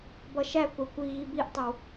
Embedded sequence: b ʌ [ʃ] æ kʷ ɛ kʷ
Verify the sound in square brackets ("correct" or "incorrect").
correct